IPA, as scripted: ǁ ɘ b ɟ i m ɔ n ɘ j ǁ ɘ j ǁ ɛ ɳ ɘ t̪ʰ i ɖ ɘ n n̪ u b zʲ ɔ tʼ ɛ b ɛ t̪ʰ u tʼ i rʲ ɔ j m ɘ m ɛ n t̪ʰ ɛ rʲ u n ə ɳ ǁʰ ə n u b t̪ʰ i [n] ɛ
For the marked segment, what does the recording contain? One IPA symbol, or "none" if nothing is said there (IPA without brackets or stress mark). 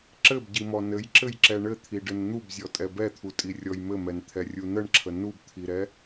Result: ɾ